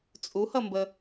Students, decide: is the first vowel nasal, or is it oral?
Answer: oral